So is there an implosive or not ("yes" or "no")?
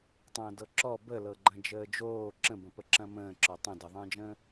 no